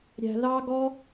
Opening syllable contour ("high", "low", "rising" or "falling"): low